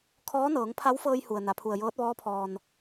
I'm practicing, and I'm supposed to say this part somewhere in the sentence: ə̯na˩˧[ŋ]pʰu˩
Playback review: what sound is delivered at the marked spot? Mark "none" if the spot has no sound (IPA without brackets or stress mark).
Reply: none